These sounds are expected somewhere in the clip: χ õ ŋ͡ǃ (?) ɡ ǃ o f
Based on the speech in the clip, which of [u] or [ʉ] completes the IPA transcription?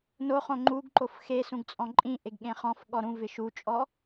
u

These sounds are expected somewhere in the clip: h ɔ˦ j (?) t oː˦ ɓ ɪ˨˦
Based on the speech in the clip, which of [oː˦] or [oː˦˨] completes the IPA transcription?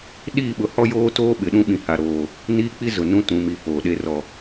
oː˦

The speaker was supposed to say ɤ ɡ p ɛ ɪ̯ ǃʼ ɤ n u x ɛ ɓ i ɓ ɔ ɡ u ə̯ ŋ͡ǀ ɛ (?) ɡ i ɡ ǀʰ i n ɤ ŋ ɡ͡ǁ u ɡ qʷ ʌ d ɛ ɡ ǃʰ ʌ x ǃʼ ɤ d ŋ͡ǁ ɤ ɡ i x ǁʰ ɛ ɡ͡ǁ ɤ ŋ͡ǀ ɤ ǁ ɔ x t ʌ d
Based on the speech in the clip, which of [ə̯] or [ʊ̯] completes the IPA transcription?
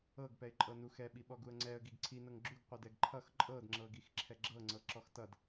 ə̯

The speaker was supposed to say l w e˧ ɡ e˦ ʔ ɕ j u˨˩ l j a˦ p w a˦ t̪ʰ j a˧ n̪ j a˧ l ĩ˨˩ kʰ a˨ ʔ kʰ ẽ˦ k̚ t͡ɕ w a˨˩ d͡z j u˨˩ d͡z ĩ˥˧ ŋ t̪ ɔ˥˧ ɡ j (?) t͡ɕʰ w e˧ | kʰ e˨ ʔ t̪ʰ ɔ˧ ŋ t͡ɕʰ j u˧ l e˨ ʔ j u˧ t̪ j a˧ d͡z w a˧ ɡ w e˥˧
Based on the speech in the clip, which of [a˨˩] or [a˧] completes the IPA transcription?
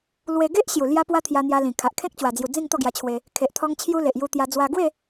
a˧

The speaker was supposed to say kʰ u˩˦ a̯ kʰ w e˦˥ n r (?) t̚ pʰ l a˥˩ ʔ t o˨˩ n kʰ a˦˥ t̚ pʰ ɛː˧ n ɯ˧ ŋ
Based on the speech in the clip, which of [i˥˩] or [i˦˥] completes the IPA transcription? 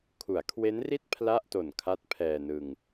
i˥˩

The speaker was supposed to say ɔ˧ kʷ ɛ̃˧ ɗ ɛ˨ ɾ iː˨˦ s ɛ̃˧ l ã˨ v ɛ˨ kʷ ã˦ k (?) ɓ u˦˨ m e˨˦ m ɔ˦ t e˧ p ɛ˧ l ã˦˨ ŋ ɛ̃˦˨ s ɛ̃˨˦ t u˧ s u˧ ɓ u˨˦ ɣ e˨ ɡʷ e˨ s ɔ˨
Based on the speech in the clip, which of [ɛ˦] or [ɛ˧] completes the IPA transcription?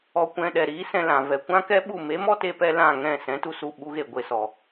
ɛ˦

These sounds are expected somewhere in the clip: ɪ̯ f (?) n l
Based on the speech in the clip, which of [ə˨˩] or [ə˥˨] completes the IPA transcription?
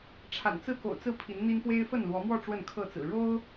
ə˥˨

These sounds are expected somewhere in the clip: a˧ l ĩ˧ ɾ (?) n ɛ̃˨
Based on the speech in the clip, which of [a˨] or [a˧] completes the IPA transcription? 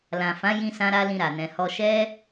a˨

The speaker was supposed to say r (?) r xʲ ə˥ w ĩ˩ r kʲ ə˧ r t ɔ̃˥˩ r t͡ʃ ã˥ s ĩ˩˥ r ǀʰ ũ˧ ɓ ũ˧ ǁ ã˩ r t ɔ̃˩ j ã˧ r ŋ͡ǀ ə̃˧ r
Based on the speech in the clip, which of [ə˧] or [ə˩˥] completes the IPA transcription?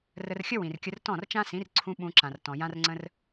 ə˧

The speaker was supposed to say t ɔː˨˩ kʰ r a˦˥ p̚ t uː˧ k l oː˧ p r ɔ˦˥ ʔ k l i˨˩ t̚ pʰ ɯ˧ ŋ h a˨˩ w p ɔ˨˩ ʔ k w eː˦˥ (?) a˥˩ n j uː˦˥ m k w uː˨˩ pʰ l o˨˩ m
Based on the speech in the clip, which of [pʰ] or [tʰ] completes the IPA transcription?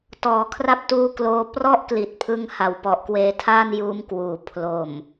tʰ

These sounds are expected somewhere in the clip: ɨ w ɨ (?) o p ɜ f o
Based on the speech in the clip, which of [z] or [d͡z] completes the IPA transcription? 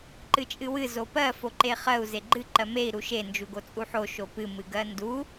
z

